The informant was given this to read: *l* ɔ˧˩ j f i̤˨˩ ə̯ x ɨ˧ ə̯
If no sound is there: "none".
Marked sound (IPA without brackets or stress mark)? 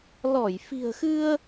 l